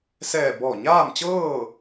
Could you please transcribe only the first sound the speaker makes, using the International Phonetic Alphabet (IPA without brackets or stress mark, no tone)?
s